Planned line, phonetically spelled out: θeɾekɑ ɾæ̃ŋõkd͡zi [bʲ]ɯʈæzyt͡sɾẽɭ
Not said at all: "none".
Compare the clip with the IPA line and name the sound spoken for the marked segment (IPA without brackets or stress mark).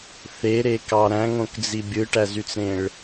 bʲ